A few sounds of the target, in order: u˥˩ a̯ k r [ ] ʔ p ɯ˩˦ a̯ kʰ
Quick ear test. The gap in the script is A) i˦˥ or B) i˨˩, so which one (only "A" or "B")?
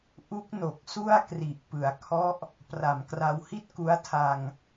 B